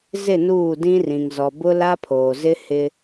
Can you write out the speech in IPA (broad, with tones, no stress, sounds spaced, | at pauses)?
z ɪ˦˨ n uː˦˨ d ĩ˦ r ĩ˨ ŋ z ɔ˨ b ʊ˦ l a˦ pʰ oː˨ z ɪ˦ h ɪ˦